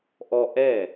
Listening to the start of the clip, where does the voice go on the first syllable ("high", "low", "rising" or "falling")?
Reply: high